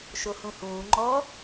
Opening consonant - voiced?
no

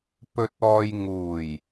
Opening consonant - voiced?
no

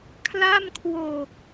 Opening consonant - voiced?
no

